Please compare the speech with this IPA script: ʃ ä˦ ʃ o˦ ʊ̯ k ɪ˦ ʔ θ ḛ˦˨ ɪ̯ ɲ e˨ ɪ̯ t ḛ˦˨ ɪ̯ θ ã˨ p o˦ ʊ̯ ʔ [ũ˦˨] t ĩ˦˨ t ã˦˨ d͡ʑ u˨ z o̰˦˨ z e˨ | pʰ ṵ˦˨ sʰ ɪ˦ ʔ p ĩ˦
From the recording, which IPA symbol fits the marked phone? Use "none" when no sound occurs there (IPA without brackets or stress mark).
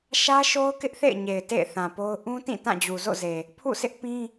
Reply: ũ˦